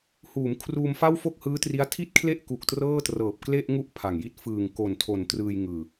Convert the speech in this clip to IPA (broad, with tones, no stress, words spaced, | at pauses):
huː˩˦mkʰruː˧m fa˥˩w fo˥˩k̚hɯː˦˥tri˦˥a̯ tʰi˥˩t̚kʰle˥˩ʔku˨˩k̚ trɤː˥˩trɤː˨˩p̚kle˥˩ʔŋu˥˩ʔ pʰa˨˩ŋji˥˩t̚ fɯː˨˩ŋko˨˩ntʰo˨˩n trɯː˧jŋɯː˨˩